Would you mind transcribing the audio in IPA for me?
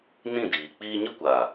n ĩ˦˨ d iː˨ k͡p iː˧ ɲ ə˦ kʷ aː˨

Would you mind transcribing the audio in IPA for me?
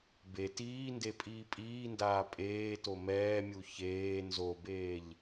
b e t iː n d e pʼ iː pʼ iː n d aː pʼ eː t o m ɛː mʲ u ç eː n z o b eː ʎ

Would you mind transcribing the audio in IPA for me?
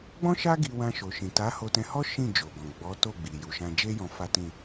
ɡ͡b ɔ̃˦ ʃ a˦ ɡ i˧ w ã˧ ʃ o˨ ʃ ĩ˨ t a˨˦ h o˧ t ɛ̃˧ h ɔ˦ ʃ ĩ˦˨ d͡ʒ o˨ ɡ ɔ̃˨ ɡ͡b ɔ˨˦ t o˦˨ ɡ͡b i˨ j u˨ ʃ ã˧ d͡ʒ e˦ j ɔ̃˧ f a˦ t ĩ˦˨

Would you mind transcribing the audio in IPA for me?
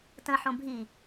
t ə̃ ħ õ bʱ i

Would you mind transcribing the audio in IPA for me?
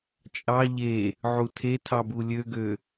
t͡ʃʼ ɑ ʎ e | ʕ u tʰ e tʰ ɑ b u lʲ ø ɡ ø

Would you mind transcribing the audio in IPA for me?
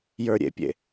j ə˞ ɾʲ ḛ pʲ ḛ

